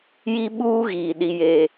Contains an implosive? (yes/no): yes